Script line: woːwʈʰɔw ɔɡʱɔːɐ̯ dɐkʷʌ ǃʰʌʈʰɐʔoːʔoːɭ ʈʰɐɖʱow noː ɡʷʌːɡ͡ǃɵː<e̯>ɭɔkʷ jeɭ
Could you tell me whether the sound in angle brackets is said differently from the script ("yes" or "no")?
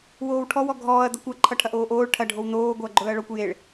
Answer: yes